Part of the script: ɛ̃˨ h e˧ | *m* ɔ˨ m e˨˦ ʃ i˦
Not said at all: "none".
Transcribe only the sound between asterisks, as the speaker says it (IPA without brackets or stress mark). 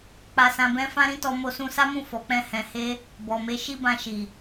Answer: b